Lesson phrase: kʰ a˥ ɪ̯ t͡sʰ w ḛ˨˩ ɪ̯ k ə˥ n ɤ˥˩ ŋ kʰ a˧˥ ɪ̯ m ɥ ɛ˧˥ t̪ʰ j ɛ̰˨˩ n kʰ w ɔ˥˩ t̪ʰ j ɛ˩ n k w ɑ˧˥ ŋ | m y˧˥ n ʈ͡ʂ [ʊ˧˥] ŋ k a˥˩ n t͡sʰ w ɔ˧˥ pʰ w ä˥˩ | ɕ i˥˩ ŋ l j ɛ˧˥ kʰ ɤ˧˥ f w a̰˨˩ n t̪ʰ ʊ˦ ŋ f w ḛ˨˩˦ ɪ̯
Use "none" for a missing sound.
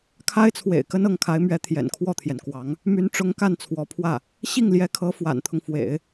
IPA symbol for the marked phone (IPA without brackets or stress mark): ʊ˧˥